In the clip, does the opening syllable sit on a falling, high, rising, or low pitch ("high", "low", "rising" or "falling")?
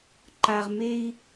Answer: low